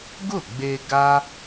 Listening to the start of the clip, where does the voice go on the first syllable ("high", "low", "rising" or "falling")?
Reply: falling